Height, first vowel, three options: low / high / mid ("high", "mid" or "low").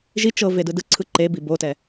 high